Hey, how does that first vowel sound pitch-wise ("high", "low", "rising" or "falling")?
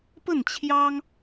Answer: falling